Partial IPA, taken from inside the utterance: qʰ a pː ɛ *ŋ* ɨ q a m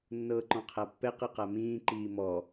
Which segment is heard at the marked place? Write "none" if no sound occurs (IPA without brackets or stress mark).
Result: q